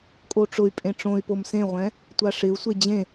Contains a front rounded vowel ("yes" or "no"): yes